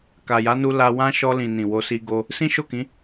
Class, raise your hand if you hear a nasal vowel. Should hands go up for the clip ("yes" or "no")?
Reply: yes